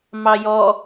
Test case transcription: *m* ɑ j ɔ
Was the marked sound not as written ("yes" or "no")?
no